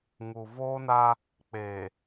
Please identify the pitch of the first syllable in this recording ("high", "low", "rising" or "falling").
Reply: low